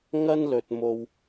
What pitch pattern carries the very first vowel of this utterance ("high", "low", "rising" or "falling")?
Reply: high